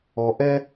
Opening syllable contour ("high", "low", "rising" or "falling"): low